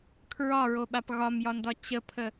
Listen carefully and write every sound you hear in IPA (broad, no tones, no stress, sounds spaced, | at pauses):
kʰ ɹ ɒ ɹ o ɓ a p ɣ ɒ m j ɒ n d ɒ t͡ɕ ə pʰ ə